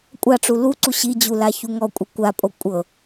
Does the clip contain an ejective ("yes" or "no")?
yes